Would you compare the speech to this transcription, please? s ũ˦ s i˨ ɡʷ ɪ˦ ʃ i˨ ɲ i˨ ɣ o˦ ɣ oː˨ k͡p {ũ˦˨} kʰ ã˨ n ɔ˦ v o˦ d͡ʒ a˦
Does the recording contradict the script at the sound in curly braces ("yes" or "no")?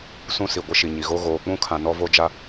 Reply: yes